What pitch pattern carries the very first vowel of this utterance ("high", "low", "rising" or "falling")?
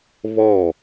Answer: falling